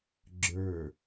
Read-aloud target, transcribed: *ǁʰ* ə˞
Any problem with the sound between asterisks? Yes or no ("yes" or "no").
yes